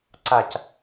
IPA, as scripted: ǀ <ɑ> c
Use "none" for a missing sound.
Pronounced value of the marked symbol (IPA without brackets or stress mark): a